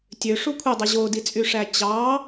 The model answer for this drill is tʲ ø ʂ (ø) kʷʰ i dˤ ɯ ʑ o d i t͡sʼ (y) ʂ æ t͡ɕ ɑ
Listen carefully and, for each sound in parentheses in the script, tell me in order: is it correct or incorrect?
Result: incorrect: u, correct

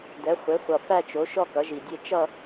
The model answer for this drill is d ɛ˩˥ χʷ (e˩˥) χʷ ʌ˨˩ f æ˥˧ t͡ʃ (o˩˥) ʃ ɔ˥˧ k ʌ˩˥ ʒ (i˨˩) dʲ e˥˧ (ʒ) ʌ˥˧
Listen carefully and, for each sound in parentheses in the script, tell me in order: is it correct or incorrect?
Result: correct, correct, correct, incorrect: t͡ʃ

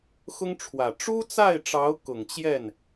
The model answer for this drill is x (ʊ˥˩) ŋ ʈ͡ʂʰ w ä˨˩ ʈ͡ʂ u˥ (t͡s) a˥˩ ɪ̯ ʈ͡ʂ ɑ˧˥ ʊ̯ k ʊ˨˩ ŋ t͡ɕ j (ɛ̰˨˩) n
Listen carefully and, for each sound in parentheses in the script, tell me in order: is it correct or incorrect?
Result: incorrect: ʊ˥, correct, incorrect: ɛ˥˩

